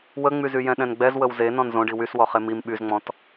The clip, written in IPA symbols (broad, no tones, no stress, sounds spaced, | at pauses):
w ə ŋ͡m y z y j ɛ̃ ɗ ɛ̃ n ɡ͡b ɛ z w ə w z e n ɔ̃ n z õ ɖ i w y s w ɔ χ e m i m ɓ y z ŋ͡m ɔ̃ t